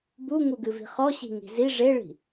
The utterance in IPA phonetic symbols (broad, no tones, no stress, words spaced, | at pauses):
buŋuɡɨvi̤ χɔɕi̤ŋi̤ zi ʐeɭi̤